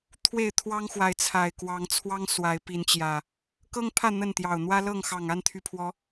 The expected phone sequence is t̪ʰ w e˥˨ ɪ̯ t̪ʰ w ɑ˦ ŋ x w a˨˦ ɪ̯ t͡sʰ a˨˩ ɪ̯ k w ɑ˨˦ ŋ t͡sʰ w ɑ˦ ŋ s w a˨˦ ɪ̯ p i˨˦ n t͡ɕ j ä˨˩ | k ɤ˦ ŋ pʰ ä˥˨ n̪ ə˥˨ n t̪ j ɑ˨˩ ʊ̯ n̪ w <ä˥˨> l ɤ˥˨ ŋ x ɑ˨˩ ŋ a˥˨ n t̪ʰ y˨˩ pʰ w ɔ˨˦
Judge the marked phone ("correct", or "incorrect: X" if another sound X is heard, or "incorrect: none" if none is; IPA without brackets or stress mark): incorrect: ä˦